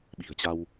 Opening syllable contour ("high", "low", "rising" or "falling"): low